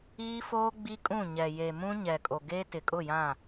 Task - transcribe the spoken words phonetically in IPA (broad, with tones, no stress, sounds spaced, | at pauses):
iː˦ f oː˦ ɡ͡b i˦ kʼ ũ˦˨ ɲ ɛ˨ j e˨ m ũ˦ ɲ ɛ˨ kʼ o˨ ɡ e˦ t ɪ˨ kʼ ʊ˦˨ j ã˦˨